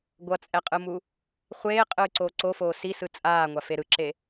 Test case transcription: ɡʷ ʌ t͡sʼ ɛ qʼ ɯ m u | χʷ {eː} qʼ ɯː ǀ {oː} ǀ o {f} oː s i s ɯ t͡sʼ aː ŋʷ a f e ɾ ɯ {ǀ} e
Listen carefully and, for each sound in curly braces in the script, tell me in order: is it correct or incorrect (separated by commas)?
correct, correct, correct, incorrect